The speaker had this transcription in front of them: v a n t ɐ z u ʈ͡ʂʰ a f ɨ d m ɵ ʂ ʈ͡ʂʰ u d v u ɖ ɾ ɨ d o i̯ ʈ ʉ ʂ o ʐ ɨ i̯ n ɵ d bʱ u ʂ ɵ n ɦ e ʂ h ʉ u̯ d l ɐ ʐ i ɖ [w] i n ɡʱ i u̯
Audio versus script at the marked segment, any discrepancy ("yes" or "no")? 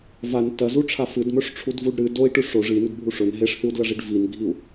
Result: yes